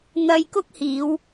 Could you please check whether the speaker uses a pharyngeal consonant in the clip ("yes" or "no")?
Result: no